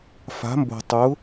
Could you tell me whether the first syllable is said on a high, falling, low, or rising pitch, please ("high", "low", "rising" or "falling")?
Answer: rising